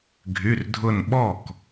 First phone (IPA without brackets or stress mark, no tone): ɡʱ